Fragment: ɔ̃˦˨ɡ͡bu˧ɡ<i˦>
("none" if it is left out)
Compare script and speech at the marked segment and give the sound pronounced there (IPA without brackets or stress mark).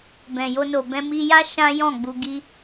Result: i˦